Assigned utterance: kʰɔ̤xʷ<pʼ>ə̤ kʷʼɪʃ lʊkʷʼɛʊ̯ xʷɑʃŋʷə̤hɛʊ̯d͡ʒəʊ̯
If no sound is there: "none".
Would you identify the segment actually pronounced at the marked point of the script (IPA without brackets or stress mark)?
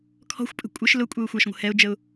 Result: pʼ